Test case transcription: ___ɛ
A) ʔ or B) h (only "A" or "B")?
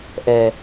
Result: A